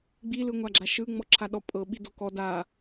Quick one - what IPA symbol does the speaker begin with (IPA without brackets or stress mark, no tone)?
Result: ɡ͡b